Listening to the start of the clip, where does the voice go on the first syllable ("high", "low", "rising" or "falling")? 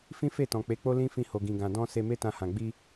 high